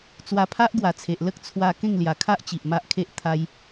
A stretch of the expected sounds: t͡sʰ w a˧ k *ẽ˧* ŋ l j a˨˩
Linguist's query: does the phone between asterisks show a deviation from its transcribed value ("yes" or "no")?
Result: yes